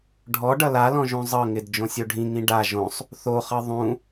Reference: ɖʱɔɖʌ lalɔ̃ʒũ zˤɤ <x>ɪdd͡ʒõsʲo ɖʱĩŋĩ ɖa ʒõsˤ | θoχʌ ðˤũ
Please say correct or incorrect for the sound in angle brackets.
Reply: incorrect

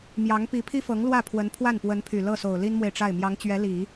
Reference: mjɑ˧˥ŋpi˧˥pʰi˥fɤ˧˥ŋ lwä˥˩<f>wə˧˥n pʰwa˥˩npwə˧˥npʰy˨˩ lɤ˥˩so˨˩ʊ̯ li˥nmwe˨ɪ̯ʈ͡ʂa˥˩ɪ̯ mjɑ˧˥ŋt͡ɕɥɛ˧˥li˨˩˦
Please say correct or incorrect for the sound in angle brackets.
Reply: incorrect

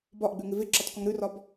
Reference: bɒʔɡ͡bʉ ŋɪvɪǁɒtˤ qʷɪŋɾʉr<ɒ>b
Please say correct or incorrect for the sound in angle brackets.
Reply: correct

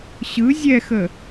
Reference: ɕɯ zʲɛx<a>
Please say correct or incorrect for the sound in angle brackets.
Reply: incorrect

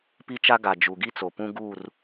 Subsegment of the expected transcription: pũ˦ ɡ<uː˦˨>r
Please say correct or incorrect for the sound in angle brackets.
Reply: correct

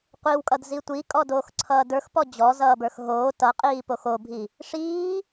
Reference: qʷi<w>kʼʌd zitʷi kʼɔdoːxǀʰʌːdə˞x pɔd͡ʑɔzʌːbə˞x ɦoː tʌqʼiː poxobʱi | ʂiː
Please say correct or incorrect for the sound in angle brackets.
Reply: correct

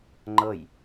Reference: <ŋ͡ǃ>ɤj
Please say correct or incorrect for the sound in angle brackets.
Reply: correct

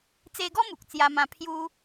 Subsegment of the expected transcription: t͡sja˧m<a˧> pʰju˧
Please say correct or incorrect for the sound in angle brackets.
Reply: incorrect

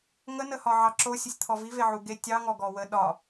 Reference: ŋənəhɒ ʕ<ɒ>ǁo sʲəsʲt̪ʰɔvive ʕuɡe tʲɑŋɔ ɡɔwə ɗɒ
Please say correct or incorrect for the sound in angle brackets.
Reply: incorrect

